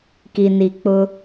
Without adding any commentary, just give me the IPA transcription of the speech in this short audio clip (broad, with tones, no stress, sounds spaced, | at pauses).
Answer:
k i˨ n i˨ k͡p ʊ˦